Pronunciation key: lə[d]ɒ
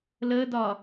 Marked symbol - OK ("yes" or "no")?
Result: yes